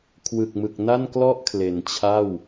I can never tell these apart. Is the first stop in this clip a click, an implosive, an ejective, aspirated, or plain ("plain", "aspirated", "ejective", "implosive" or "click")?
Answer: aspirated